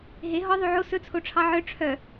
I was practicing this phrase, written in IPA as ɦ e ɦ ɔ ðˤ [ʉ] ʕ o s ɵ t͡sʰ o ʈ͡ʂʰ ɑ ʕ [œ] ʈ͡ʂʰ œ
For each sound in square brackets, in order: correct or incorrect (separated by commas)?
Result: correct, correct